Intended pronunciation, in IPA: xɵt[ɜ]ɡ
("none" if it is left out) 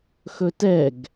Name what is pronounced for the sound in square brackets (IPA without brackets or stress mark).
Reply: ɛ